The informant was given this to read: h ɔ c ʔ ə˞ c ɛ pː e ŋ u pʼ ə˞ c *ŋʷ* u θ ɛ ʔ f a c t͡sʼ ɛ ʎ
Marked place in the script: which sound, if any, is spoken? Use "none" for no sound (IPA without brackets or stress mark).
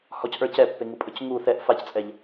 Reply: ŋ